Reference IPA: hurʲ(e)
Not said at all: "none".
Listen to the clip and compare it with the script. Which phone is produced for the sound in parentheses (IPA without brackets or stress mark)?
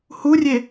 e